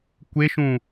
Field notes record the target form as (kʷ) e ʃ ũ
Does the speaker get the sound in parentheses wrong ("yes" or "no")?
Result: no